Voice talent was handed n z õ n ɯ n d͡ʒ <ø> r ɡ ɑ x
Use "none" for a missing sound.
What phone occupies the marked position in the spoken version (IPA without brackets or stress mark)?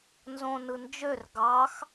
ø